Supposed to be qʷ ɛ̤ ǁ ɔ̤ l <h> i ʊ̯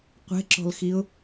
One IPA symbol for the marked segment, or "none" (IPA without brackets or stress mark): x